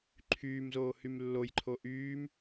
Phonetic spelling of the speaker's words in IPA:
ǃʰ yː m z oː h y m lː o j ǃʰ o ʔ yː m

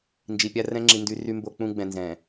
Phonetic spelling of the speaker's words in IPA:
n d͡ʒ i˨ pʲ a˦ r ɛ̃˦ ŋ͡ǁ i˨ n d y˨ r y˦ m b o˦ k͡p ũ˦ ɡ͡b ɛ̃˨ n z ɛ̃˨

